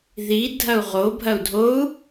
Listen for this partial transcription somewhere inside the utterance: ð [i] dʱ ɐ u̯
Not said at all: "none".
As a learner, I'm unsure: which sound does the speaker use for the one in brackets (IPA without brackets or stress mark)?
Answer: i